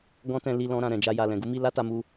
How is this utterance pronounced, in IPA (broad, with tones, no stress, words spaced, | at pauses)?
ɡɔ̃˦tɛ̃˧li˧ lɔ̃˧ɾã˨ ɾɛ̃˨d͡ʒa˧ ja˨lɛ̃˨ɡu˨˦mi˧ la˦ta˧mu˧